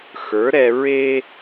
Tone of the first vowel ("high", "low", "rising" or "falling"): rising